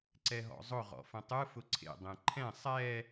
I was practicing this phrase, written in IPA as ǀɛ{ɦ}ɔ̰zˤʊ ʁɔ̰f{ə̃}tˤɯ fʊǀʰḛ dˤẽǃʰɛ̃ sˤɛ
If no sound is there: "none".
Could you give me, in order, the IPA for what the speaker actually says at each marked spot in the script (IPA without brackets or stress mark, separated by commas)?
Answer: ɦ, ə̃